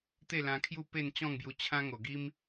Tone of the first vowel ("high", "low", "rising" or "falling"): falling